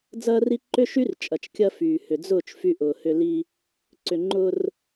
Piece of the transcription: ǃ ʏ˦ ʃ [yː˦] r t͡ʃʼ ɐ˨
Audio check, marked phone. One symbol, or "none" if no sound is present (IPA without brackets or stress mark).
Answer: y˦